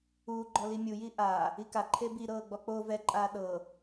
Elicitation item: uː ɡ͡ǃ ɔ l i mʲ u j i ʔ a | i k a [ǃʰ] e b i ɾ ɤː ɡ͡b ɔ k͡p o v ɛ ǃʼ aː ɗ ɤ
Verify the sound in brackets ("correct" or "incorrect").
correct